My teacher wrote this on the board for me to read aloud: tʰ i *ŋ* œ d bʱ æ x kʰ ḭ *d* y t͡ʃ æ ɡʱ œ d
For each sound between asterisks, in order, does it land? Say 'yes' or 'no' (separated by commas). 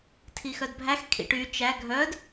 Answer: no, no